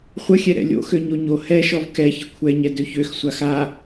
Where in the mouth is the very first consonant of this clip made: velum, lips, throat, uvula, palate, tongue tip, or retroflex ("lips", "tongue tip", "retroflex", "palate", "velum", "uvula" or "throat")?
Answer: uvula